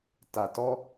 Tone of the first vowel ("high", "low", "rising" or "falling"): low